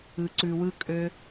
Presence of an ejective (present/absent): present